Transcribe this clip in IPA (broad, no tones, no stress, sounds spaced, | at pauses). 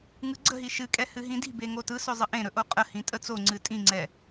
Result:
ŋ ɯ ɡ͡ǀ ə̤ ɦ i ʃ ɨ kʼ ɛ h ɨ ɦ ĩ d i̤ b e ŋ o t ɯ s ɵ zˤ ə ʔ ẽ ɾ ɵ ʔ o qʼ ə h ĩ tʼ ə t͡s o ŋ͡ǀ ɨ tʼ ĩ ŋ͡ǀ ɛ